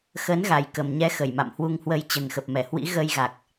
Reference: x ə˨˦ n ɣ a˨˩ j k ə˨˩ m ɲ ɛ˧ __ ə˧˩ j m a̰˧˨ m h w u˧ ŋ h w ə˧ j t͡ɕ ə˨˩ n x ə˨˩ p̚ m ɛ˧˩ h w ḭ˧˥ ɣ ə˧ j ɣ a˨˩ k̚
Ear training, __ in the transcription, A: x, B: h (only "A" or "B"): A